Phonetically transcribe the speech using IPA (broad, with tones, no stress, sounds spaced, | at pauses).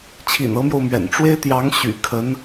t͡ɕʰ ḭ˨˩ n ɤ˧˥ m j o˧ ʊ̯ m ɥ ɛ̰˨˩ n ʈ͡ʂ w e˥ ɪ̯ t̪ j ɑ˧˥ ŋ ɕ y̰˨˩ kʰ ə˧˥ n